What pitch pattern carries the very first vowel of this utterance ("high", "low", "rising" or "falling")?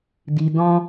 low